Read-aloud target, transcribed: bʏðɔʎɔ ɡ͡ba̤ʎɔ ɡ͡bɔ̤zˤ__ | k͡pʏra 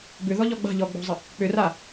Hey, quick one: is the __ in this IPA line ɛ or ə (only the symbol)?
ə